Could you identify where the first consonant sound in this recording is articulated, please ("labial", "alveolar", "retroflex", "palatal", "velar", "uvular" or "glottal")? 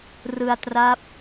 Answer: alveolar